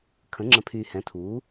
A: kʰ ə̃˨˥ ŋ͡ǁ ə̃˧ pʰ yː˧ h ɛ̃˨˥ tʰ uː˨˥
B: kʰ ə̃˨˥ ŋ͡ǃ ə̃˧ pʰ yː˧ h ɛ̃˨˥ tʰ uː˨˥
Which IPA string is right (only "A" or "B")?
A